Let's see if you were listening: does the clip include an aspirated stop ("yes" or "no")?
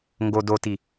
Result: no